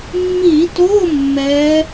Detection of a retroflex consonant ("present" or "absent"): absent